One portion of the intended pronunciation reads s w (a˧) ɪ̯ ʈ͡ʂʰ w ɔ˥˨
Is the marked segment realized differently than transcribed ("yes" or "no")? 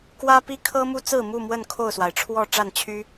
yes